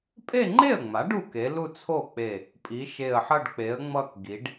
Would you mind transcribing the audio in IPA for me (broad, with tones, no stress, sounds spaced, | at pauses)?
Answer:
pʼ e˥˧ ŋ͡ǃ e˥˩ ə̯ ŋ͡m a˩˥ ɖ u˥˩ k e˩˥ l u˥˧ t͡sʰ o˥˩ k͡p e˧˩ | pʼ i˩˥ ʃ e˧˩ ə̯ ħ ʌ˥˧ ɖ k͡p e˩˥ ə̯ ŋ͡m ʌ˥˧ k ɡ i˩˥ ɖ